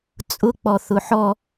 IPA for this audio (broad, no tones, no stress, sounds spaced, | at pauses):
t͡sʼ ʊ k͡p ɔ θ ʊ ħ ɔ